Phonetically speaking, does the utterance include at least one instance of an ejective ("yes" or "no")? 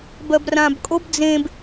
yes